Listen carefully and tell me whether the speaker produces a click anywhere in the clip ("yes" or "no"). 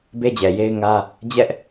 no